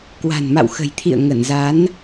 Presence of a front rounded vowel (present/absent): absent